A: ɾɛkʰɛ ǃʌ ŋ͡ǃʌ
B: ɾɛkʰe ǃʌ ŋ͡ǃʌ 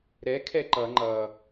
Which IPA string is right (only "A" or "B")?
A